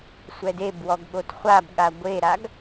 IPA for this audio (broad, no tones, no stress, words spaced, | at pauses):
sʷɛdebwɔɡɠot χʷabɠa ɡʷeɾaɡ